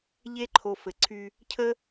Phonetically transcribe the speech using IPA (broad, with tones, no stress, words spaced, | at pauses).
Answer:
ʎe˦ǃʰo˨ fɘ˨ǀʰy˦ | cʰə˦